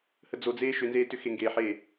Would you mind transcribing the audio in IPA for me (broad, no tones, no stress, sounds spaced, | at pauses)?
h ə d͡z o d͡z eː ʃ ʏ n z eː t ʏ x e ŋ ɡ eː ħ eː